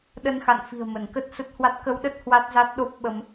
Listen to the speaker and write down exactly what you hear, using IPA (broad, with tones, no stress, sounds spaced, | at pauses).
ɗ ə˧ n x a̰˧˨ n f i̤˨˩ ə̯ m ə˧˩ n k ə˦˥ t̚ s ə˦˥ t̚ h w a˦˥ t̚ k ə˧ w ɗ ə˦˥ t̚ h w a˦˥ t̚ z a˦˥ t̚ ɗ o˦˥ p̚ ɓ ə˧ m